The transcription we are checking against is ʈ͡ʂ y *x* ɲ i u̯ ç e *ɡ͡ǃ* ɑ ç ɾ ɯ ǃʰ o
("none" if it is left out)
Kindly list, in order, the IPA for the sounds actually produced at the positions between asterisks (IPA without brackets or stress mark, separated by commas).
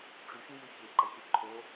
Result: x, ɡ͡ǃ